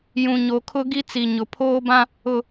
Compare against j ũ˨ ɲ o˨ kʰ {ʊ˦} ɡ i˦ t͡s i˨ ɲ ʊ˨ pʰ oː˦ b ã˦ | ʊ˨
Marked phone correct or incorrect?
correct